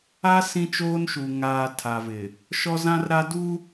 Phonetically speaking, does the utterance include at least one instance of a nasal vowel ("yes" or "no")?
yes